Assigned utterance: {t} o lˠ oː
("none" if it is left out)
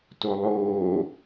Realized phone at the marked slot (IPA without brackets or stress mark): t